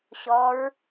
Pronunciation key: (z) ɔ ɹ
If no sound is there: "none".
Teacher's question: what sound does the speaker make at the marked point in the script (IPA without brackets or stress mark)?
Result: ɕ